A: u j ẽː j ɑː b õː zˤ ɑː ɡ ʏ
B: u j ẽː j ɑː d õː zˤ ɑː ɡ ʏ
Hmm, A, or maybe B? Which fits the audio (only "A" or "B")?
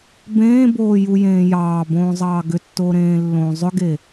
A